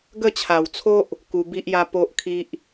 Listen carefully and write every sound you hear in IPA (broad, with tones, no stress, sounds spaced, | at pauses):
ɡ ə˥˧ t͡ɕʰ a˨˩ w t͡sʰ o˦ ʔ | k u˧ b i˦ ʔ j a˦ p o˦ ʔ kʰ i˦ ʔ